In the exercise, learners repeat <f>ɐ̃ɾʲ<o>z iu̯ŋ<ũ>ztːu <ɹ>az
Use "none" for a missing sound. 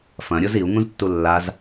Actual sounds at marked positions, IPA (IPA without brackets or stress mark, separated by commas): f, o, ũ, lː